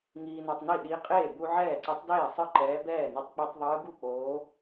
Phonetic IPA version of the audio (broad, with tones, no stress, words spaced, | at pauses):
ŋiː˧nɔ˧tˤni˥˩ ɗi˧˥qʼeː˥˩ bu˧ ʕɛː˥˩ǀɯ˧˥tˤdeː˥˩sˤɯ˥˩ ǃɛː˧˥ bɛː˥˩ni˧tˤ k͡pi˧tˤðˤɯː˧˥ ɡu˥˩k͡poː˧˥